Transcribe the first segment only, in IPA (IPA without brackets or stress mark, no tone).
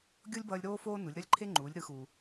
ɡʲ